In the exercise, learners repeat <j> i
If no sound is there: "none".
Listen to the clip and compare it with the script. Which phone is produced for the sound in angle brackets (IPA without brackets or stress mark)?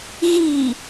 ɣ